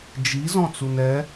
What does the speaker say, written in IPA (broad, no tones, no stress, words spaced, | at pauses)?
d͡ʒi zɔ̃t͡sunɛ